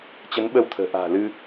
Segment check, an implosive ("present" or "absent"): present